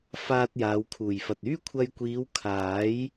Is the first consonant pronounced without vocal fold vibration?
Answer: yes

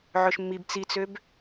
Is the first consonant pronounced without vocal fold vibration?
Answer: no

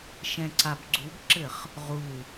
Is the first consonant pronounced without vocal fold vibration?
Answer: yes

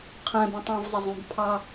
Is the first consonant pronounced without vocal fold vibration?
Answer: yes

